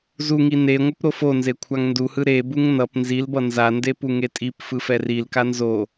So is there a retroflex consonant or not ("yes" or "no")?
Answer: no